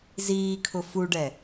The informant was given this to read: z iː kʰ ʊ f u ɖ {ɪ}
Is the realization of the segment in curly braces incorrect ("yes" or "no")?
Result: yes